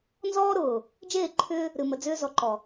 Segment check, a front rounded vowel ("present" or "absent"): present